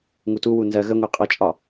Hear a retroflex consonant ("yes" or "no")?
no